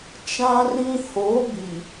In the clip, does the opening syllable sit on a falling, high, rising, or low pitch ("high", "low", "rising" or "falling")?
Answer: high